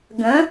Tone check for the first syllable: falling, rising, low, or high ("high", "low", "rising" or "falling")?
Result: rising